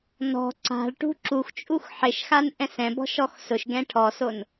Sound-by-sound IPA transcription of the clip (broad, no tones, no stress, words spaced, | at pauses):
nɔ̤ ǀa̤ɭʈṳ ǁuxt͡ʃʼux ħɪʃxan ʔɛ̃sɛ̃bɔ̤ ʃɔxsʊʃɡɛ̃ ʈʰɔson